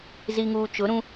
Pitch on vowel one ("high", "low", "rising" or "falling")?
low